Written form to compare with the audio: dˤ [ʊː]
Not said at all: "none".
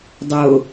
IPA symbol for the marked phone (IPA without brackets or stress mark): ʊː